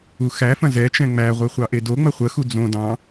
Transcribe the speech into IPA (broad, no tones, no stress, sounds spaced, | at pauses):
u x æ f ɐ̃ z ɛ t͡ʃ ɛ̃ ŋ͡m æ ʁʷ e χʷ ɑ ʔ e d o ŋ͡m ɐ χʷ ə x u d͡z õ d ɑ̃